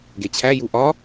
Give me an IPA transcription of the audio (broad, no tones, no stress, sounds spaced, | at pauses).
ɡ e t͡ɕʰ æ j u ʔ ɒ